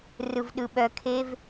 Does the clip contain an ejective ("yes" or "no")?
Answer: no